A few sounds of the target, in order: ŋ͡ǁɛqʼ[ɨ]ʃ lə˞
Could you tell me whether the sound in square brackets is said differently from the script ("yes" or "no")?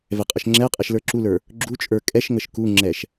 yes